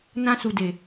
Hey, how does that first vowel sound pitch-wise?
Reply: high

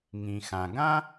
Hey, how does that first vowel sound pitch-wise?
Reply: low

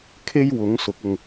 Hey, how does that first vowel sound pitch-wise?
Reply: high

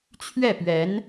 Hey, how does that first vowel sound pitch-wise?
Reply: falling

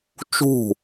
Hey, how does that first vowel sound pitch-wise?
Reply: falling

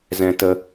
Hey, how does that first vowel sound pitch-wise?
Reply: high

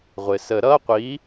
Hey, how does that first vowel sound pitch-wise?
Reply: low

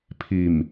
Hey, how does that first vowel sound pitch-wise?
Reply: low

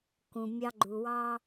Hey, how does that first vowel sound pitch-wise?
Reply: low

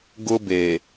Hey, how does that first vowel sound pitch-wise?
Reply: high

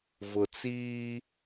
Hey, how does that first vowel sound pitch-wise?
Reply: low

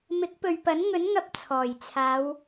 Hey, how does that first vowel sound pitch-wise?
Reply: rising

